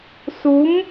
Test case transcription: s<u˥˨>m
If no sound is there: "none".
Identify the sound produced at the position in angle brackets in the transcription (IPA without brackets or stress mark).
u˧˥